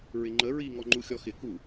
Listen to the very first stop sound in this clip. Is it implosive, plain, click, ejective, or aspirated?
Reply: click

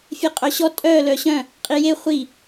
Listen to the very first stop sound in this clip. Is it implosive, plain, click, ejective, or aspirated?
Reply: ejective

